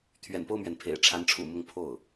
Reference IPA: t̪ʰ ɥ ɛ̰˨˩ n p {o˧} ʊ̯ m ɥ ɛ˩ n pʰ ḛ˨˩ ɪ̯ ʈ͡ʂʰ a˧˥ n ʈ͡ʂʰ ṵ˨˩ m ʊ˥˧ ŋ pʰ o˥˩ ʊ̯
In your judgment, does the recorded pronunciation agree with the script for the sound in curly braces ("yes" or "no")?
no